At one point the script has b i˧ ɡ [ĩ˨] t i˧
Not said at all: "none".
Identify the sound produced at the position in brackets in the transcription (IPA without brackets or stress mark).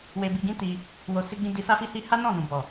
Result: ĩ˦